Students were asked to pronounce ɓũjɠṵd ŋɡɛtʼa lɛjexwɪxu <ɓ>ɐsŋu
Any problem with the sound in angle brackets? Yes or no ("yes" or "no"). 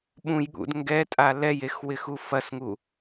yes